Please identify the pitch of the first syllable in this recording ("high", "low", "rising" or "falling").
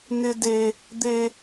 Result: high